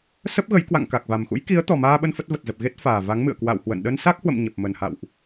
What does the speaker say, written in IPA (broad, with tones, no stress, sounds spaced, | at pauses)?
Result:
s ə˦˥ p̚ ɣ ə˨˦ j k w a̰˧˨ ŋ k a˨˩ k̚ v a˨˩ m x ṵ˧˥ j k i˨˦ ə̯ t̪ ɔ˨˩ m aː˧ ɓ ə˧ n f ə˦˥ t̚ v ə˨˩ t̚ z ə˨˩ p̚ ɣ e˦˥ t̚ f aː˨˩ v a˨˦ ŋ m ɨ̰˧˨ ə̯ k w a̰˧˨ w h w ə̰˧˨ n ɗ ə˧ n s a˦˥ k̚ h w ə̰˧˨ m ɲ ə˨˩ p̚ m ə˨˩ n h a̰˧˨ w ʔ